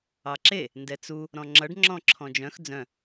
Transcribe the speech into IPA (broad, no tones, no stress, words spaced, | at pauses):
ɑǁe | ndɛt͡su | ɾɔ̃ŋ͡ǁʌɖ ŋ͡ǁɔ̃ǁʰɔ̃d͡ʒœ̃x d͡zœ̃